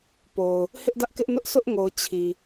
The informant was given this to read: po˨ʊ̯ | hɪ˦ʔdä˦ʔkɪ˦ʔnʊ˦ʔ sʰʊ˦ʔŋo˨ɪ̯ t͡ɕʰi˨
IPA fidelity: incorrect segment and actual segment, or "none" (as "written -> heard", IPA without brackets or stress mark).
ɪ̯ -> ʊ̯